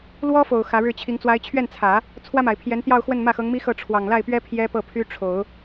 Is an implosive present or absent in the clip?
absent